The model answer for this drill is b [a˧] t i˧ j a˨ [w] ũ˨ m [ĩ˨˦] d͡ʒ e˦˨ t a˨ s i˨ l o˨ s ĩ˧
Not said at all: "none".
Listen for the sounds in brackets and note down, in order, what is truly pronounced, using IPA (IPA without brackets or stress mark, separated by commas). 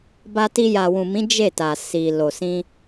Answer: a˧, w, ĩ˨˦